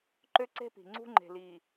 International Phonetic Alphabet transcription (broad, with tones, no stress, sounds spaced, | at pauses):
ǃ ø˦ ǀ e̤˦ p i̤˨ ŋ͡ǀ ṳ˦ ŋ͡ǃ e̤˨ l iː˨